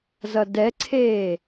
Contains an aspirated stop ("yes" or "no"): yes